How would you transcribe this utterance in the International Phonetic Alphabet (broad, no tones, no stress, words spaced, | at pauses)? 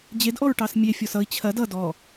d͡ʑedʔɔɹʈɑs mʲefʲɔs ʌi̯ t͡ɕʰɐ dʌ dɔ